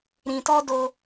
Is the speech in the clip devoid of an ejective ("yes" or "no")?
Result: yes